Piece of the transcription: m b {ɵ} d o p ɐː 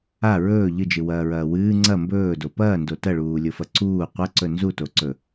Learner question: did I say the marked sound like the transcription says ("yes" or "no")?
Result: no